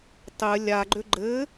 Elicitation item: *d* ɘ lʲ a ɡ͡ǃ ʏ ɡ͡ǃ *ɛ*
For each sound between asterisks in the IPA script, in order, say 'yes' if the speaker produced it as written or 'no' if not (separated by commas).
no, no